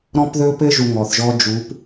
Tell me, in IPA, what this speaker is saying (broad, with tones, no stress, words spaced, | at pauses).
ɾɔ̃˦pðɵ˦pɘ˦ ʒu˨ ŋɔ˨θʒɔ˦ d͡ʒu˨˦p